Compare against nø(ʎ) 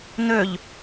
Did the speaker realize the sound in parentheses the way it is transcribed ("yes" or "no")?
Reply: yes